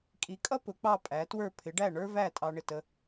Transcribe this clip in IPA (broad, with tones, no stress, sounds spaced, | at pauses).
kʼ i˩˥ kʼ ʌ˥ p ʊ˩˥ k͡p ɑ˥˩ pʼ æ˩˥ t w ə˞˥˩ pʰ ɪ˩˥ ɖ æ˥˩ ɳ ə˞˥ v æ˥˩ tʼ ɑ˧ ɳ ɪ˥˩ t ə˧